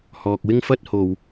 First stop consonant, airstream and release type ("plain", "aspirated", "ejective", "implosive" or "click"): plain